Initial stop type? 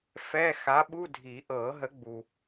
implosive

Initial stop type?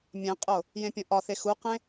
ejective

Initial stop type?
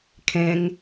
aspirated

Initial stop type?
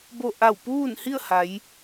plain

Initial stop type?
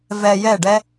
plain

